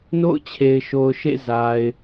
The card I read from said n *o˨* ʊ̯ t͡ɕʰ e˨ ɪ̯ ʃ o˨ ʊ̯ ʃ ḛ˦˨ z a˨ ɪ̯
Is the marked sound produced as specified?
no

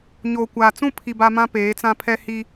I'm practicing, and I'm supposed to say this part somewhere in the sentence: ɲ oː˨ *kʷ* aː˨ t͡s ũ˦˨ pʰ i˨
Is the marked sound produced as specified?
yes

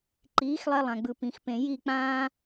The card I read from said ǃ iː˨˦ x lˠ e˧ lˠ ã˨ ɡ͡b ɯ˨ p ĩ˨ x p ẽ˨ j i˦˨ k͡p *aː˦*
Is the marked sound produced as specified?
no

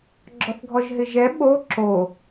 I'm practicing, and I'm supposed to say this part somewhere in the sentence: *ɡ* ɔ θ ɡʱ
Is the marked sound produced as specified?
no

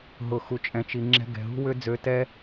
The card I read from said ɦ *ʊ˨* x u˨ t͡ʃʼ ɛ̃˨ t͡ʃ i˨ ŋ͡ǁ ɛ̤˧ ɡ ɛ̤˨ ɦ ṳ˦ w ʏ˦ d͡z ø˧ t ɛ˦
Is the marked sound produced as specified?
yes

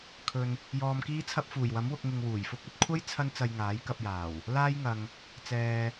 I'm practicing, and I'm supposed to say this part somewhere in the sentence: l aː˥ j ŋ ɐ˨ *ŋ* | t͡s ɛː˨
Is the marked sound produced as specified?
yes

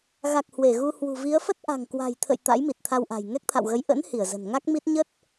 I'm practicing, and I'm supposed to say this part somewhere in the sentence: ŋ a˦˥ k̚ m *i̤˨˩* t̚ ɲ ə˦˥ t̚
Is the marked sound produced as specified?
no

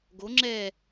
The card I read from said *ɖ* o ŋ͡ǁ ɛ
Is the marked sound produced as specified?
no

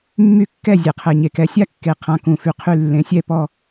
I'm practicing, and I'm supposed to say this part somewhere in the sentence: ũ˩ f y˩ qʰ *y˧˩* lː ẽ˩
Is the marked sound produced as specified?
yes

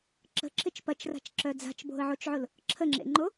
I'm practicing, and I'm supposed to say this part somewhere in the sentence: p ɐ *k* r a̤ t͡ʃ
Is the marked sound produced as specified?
no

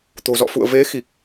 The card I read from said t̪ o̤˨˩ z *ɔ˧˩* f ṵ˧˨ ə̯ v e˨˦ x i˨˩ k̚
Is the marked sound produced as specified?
no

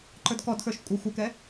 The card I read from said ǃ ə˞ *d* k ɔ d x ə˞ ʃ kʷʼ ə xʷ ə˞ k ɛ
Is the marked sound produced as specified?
yes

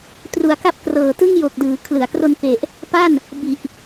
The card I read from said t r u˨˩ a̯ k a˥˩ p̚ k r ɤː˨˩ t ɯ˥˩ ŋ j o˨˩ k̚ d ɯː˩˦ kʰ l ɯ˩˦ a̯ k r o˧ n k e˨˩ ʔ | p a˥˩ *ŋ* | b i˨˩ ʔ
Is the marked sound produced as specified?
no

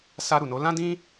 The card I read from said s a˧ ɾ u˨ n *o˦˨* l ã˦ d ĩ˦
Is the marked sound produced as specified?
no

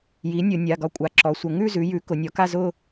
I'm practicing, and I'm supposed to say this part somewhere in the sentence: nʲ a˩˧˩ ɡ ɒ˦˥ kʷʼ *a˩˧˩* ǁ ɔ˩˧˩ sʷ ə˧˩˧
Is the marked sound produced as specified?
yes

